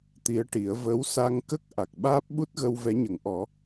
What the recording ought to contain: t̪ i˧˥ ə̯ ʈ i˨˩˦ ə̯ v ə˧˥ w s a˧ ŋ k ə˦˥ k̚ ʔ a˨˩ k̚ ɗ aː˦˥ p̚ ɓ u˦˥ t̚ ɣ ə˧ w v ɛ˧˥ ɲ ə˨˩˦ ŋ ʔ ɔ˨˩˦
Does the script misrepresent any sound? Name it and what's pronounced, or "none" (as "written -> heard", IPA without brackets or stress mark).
ɗ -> ɓ